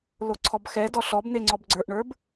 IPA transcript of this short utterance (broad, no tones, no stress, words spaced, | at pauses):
loǀʰɔbxɛdɔ ɬɔbn̪e ŋ͡ǀɔbɡ͡ǀə˞ʔɳə˞b